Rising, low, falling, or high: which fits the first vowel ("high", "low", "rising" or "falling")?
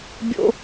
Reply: high